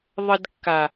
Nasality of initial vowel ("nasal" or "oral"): oral